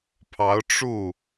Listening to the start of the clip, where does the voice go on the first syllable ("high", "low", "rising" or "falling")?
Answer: rising